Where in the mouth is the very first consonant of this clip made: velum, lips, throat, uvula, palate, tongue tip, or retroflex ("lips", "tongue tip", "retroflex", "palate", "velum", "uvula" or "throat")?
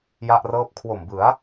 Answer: palate